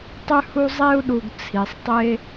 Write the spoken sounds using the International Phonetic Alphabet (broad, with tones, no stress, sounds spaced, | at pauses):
tˤ ʉ˦ h u˦ zˤ e˥ u̯ ɗ u˨ ɡ t͡sʰ i˩ sˤ tˤ e˦